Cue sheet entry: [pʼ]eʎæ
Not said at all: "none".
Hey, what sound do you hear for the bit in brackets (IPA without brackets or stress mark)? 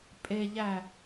pʼ